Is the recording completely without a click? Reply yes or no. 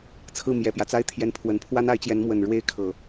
yes